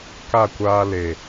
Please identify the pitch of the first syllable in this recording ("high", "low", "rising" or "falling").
falling